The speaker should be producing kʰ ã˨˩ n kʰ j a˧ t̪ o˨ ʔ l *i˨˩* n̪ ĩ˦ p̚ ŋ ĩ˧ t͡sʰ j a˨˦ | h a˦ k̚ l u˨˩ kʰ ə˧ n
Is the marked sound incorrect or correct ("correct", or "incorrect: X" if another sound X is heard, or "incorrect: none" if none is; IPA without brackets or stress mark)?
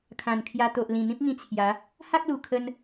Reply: incorrect: ĩ˨˩